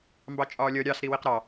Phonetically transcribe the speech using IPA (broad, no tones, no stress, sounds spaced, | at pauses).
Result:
m b ɑ t͡ʃʼ ɒː lʲ ʌ ɾʲ ɑ s ɾ i w i q ɾ ɑ